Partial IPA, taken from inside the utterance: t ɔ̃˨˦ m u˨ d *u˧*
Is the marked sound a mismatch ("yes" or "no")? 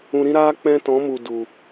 yes